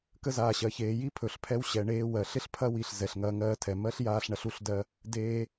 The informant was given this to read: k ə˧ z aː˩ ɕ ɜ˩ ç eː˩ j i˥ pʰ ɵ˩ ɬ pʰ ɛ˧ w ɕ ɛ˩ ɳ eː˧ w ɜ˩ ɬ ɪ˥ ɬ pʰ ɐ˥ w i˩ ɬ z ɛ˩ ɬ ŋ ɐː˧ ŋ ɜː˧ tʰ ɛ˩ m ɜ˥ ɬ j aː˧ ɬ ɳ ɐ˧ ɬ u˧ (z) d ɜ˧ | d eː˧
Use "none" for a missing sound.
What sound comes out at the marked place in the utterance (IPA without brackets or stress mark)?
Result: ɬ